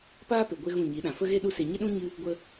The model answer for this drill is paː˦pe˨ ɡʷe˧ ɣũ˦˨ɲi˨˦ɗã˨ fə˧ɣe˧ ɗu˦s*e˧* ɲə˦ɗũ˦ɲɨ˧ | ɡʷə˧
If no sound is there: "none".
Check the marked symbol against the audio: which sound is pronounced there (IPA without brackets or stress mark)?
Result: e˧